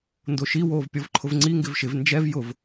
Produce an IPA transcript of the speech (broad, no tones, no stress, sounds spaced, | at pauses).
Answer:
n d o ʃ i w oː v pʲ ɔ v ǃʰ ʊ v ŋ͡ǀ i ŋ ɡ ɪ v ʃ ɪ v n d͡ʒ ɛ v j ʊ v